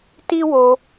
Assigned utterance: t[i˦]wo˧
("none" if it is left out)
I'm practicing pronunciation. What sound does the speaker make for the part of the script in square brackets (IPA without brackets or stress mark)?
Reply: i˦